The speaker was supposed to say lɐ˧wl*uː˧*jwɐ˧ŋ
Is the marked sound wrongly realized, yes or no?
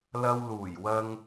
yes